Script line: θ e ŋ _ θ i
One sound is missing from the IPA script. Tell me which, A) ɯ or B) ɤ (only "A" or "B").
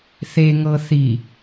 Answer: B